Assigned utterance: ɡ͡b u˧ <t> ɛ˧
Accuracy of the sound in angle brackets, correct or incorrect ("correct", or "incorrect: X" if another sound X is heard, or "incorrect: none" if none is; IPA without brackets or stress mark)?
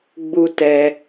correct